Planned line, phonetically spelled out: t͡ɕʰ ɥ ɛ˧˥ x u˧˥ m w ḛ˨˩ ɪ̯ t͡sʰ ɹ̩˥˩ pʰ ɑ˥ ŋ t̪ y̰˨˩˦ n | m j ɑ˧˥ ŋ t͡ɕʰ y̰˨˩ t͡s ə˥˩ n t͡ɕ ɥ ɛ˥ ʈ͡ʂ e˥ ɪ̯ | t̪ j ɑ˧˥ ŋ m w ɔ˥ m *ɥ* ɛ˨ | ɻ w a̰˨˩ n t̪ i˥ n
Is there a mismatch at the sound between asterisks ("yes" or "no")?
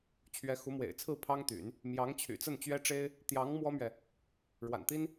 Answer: no